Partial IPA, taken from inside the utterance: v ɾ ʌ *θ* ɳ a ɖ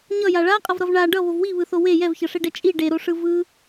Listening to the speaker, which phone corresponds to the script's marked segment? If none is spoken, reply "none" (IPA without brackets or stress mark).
v